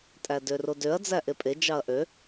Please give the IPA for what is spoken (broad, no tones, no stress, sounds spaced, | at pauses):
tʼ æ d ø r o d ø ɐ̯ d͡z æ ʔ e pʼ e d͡ʒ ɑ ɐ̯ ʔ ø